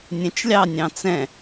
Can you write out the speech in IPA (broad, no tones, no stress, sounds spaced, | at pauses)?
nʲ ɛ̃ t͡ʃ lʲ ɑ nʲ ɑ̃ t͡s ɛ̃